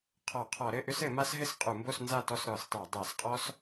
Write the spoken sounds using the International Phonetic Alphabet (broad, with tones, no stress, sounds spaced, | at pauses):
qʰ ɔ˧˩˧ qʰ ɔ˧˩˧ ɾ ɘ˥˨ ʔ ʏ˥ s ɘ˧˩˧ m a˥ s ɦ ɘ˥ s qʼ u˧˩˧ m b o˥˨ s n z a˥˨ t ɔ˥˨ s ɾ ɔ˧˩˧ s tˤ a˧˩˧ dˤ a˧˩˧ s qʼ ɔ˥ s